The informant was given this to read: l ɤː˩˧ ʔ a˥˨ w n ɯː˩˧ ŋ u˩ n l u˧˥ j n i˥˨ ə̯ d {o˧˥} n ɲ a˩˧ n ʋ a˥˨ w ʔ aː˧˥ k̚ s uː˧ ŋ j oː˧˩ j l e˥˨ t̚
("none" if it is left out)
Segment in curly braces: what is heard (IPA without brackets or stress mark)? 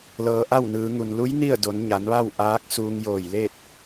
o˩˧